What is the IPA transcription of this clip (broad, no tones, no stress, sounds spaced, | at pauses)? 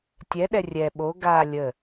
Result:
tʲ ɛ ɗ ɛ rʲ ɛ ɓ o ɡ a lʲ ə